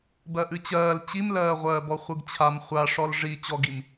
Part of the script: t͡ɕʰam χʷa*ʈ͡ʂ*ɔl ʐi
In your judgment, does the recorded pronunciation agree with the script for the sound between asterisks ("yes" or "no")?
no